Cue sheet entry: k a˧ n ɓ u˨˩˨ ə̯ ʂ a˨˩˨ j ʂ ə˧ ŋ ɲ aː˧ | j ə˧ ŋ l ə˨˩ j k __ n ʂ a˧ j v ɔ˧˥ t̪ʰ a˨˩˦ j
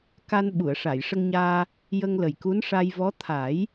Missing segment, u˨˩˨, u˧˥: u˧˥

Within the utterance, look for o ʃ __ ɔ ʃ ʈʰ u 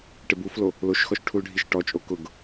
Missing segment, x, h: x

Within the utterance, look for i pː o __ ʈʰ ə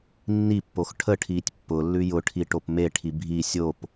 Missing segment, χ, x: x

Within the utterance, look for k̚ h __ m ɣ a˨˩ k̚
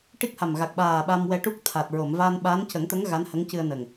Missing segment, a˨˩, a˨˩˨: a˨˩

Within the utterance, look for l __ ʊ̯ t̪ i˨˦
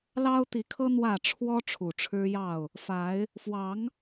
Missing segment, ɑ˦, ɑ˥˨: ɑ˦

